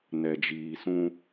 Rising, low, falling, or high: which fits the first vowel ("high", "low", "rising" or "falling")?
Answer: low